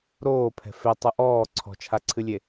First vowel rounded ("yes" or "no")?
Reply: yes